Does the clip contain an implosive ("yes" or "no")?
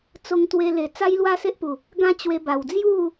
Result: no